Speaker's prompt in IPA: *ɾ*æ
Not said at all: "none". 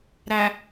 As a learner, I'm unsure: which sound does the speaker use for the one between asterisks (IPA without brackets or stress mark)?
ɾ